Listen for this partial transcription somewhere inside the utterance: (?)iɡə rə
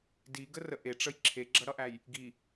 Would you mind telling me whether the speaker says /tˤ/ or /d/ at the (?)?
d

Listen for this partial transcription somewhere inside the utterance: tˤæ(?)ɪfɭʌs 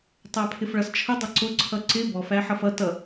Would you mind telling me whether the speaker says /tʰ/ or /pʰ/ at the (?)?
pʰ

